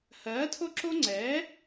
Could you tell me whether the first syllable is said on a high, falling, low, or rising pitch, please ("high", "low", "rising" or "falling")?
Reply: rising